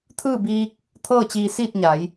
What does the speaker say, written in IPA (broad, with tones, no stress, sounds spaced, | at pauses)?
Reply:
t̪ʰ ɯː˥˨ b iː˧ k̚ | t̪ʰ ɤː˥˨ t͡ɕ iː˧ s iː˥˨ t̚ ɲ a˩˧ j